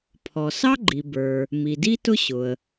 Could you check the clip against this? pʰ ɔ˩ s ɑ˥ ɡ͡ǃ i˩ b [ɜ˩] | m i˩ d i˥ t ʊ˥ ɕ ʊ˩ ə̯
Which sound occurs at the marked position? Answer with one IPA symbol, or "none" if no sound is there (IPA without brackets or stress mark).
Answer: ə˞˩